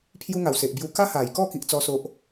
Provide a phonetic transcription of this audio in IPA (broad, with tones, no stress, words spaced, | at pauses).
pʰju˧ŋa˨˩w se˨ʔbju˧ ka˦ha˨˩jkɔ˥˧ ki˦ʔt͡sɔ˦so˦ʔ